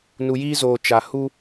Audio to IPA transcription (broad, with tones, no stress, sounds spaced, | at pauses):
n u˨ j iː˦ z oː˨ t͡ʃ a˨ h u˦